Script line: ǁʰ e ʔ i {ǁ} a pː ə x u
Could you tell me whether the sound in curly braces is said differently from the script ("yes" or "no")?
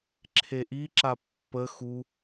no